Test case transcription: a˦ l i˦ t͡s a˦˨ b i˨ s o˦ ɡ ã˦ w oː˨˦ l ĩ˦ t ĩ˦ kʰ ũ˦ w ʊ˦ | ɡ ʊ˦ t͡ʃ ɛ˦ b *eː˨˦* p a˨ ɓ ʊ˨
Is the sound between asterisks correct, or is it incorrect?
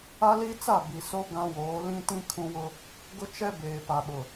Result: incorrect